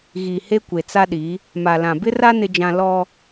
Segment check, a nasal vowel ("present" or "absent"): present